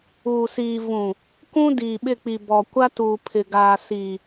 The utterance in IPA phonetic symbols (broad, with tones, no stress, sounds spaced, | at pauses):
uː˨ s iː˨ v ũ˨ | k ũ˦ d iː˨ ɓ ɪ˦˨ k͡p i˨ b ɔ˨ kʷ a˦ t uː˨ pʰ ɪ˨ ɡ aː˨ s i˨